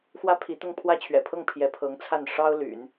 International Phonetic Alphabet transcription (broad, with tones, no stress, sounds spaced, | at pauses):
x w ä˥ pʰ i˧˥ t̪ ʊ˥˧ ŋ pʰ w ä˥˩ t͡ɕʰ ɥ ɛ̰˨˩ pʰ ɤ˥˩ ŋ pʰ j ɛ˧˥ pʰ ɤ˧˥ ŋ t͡sʰ a˥˩ n ʂ ɑ˥ ʊ̯ l y̰˨˩˦ n